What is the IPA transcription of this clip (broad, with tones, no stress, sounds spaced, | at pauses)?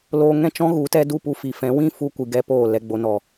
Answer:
l oː˧ ŋ ɛ̃˦ t͡ʃ ɔ̃˦ ɣ u˨˦ t ɛ˦ d u˦˨ p u˧ f i˨ f ɛ̃˨˦ w ĩ˦ f u˧ kʷ ɨ˨ ɡ ɛ˧ p oː˦˨ l ɛ˧ ɡ͡b o˨ n ɔ˨